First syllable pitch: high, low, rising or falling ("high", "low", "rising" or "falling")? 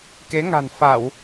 rising